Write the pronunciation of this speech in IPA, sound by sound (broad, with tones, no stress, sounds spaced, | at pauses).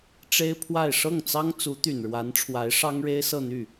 ʈ͡ʂ e˥ ɪ̯ pʰ w a˥˧ ɪ̯ ʂ ɤ˥˩ ŋ t͡s ɑ˥ ŋ t͡s u˧˥ t̪ y˨˩ n ɻ w a˧˥ n ʈ͡ʂʰ w a˧˥ ɪ̯ ʂ ɑ˥ ŋ ɻ e˥ ɪ̯ s ɤ˥˧ n̪ y˥˩